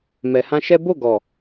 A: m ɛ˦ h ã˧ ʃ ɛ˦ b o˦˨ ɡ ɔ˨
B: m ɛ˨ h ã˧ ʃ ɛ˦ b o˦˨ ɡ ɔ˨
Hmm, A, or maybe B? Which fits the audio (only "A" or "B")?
B